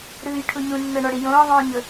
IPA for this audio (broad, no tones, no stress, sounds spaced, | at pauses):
ɾ ɯː j ʈʰ u ɲ ũ nː ɤ ɳ ɔ ɽ i j õː ðˤ õː ɲ ɤ